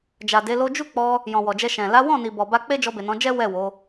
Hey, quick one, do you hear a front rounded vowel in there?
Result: no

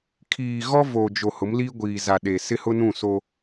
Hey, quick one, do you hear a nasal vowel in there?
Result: yes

